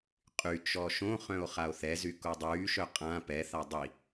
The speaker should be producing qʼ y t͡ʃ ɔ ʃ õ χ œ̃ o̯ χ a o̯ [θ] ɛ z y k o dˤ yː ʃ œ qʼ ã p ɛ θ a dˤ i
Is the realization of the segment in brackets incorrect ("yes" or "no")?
no